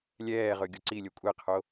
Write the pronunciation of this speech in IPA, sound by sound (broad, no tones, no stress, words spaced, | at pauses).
lʲɛːʁɵ ɡʲoǀilʲɵ kʷʼeqʰo